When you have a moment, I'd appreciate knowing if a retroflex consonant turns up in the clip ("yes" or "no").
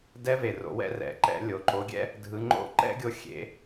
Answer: no